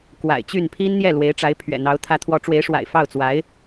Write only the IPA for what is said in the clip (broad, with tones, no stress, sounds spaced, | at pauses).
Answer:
k w a̰˨˩ ɪ̯ t͡ɕ y˥˩ n pʰ i˥ n n̪ j ɛ˥˩ l w e˧˥ ɪ̯ ʈ͡ʂ a˧˥ ɪ̯ pʰ ɥ ɛ̰˨˩ n̪ ɑ˧˥ ʊ̯ t̪ʰ ä˧˥ t̪ʰ w ɔ˧˥ ʈ͡ʂ w e˧˥ ɪ̯ ʂ w a̰˨˩ ɪ̯ f ɑ˥˩ ʊ̯ t͡s w a˧˥ ɪ̯